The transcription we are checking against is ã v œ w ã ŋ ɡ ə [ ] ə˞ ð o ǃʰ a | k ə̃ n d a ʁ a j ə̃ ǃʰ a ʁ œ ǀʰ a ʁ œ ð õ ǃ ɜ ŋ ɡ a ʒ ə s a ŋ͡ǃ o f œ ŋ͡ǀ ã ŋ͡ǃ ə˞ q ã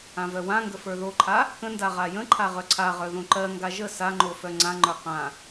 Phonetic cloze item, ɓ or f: f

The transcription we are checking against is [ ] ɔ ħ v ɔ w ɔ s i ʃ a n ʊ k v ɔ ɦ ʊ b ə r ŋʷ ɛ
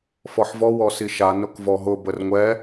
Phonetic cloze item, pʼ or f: f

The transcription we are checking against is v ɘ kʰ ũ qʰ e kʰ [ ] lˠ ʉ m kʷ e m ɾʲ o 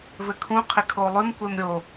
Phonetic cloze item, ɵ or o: o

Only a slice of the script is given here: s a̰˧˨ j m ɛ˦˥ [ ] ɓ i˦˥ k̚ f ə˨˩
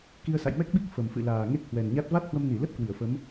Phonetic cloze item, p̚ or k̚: k̚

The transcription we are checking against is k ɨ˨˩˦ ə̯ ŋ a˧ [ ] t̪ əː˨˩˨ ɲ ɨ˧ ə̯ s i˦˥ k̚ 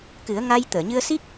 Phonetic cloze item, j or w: j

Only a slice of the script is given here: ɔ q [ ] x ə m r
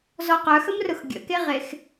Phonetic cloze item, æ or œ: œ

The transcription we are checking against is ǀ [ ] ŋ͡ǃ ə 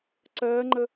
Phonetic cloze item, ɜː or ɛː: ɜː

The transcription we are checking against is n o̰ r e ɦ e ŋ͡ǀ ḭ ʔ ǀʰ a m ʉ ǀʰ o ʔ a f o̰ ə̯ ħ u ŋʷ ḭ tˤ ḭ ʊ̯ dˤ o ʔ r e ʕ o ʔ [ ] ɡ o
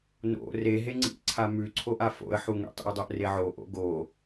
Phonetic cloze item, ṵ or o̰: o̰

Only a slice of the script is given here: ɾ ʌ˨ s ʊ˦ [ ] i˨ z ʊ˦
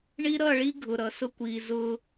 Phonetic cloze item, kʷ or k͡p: kʷ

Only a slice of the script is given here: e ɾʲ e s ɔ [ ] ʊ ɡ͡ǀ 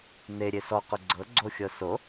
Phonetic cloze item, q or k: q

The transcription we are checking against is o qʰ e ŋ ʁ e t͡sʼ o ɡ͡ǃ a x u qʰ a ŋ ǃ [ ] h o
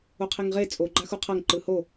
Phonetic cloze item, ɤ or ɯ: ɯ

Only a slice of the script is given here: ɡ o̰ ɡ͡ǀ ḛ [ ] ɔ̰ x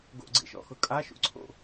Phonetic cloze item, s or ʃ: ʃ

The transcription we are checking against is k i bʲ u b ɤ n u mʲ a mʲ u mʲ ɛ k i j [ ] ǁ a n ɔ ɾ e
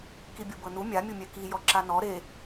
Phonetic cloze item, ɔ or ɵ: ɔ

